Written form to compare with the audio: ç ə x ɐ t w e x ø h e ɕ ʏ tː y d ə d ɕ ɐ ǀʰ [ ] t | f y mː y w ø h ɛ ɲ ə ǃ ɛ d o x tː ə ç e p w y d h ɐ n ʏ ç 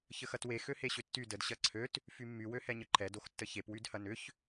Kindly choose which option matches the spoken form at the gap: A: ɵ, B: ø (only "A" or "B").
B